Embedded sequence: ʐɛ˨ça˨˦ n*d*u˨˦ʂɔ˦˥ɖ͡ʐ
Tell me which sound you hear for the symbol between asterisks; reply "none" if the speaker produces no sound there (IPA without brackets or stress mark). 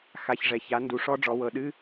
d